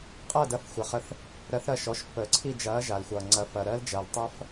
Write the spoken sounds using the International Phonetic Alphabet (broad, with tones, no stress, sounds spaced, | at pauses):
qʼ ɐː˦˨ d ɐ˩˧˩ f xʷ əː˩ χ ə˨˩˦ θ | ɾ ɜ˨˥ θ ɾ ɐ˦˨ ʃ ɔ˩˧˩ ʃ pː əː˩ ǀʰ i˦˨ d͡ʒ ɐː˨˥ ʒ a˩ l xʷ ʌː˩ ŋ͡ǀ ɐ˨˥ f ɐ˩ ɾ ɜ˦˥ l d͡ʒ ɐː˩ l tˤ ʌ˦˥ f